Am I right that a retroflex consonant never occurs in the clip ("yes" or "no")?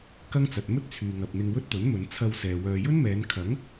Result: yes